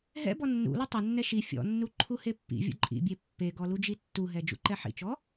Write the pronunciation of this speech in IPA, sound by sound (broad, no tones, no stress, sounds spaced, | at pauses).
ɦ ɛ̰ b ɔ nː ṵ l ɔ tˤ ɐ nː ɛ ʃ i fʲ ɔ̰ nː u ǃʰ u h e pː ḭ vʲ ṵ ǃʼ ḭ bʲ e pː e ɡ ɔ l u d͡ʒ i tː u ɦ ɛ d͡ʒ ṵ ǃ ɛ ħ ḭ t͡ʃ ɔ